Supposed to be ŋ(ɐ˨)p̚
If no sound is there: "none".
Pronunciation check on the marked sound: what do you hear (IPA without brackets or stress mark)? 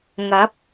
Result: ɐ˨˥